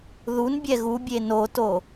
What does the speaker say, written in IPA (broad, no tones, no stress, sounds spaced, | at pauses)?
ð u n bʲ ɛ ɣ u bʲ e n o t o